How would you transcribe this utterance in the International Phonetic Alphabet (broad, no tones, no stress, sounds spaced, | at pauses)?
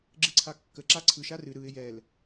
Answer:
ɡ͡ǁ ɨ ǀʰ a kː ə ǁ a ǀʰ ɯ ʃ a r ɨ ɾ ɯ ɪ̯ j ɛ l